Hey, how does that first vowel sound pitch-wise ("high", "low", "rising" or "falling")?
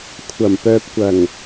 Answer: low